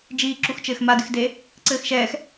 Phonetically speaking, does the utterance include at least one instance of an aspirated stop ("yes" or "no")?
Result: no